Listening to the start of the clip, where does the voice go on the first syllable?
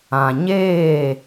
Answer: low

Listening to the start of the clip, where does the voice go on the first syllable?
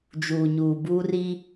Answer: low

